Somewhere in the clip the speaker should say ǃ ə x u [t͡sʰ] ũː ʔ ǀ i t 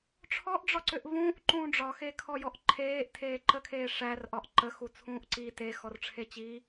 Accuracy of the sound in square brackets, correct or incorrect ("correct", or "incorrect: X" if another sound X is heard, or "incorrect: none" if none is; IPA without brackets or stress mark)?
correct